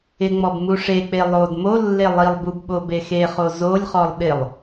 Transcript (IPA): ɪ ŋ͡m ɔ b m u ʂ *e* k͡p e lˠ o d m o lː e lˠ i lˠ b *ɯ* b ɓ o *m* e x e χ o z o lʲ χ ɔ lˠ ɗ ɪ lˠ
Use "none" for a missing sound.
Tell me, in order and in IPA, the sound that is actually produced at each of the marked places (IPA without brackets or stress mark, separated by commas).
e, u, b